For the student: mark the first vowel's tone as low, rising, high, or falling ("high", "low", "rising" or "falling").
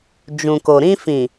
low